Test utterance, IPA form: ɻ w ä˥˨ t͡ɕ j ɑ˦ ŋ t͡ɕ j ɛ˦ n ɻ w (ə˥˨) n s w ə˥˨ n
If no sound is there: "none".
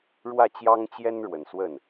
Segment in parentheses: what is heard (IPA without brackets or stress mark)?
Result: ə˨˩